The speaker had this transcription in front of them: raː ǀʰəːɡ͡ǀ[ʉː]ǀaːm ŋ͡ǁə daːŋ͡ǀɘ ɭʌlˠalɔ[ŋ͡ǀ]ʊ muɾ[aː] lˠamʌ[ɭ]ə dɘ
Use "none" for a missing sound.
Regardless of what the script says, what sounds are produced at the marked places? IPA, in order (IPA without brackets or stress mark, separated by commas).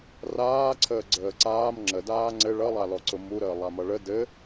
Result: əː, ǀ, əː, ɭ